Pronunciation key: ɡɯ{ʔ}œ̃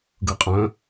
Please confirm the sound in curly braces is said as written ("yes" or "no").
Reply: no